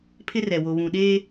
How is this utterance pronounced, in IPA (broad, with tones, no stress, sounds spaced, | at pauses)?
pʰ ɪ˦ r ɛ˨ w o˨ β ũ˨ ɗ eː˦